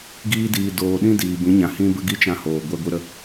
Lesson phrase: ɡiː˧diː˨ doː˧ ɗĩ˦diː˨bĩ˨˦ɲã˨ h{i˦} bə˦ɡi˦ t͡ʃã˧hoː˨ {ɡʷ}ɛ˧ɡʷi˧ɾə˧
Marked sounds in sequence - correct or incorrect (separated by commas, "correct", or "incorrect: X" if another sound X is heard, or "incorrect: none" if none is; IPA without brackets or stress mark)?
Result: incorrect: ĩ˦, correct